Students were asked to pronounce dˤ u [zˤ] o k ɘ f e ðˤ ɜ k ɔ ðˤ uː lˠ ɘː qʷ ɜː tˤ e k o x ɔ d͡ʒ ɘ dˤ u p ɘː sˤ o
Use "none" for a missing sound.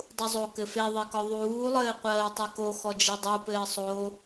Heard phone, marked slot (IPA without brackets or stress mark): zˤ